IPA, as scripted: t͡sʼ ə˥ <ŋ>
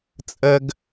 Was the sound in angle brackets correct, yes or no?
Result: no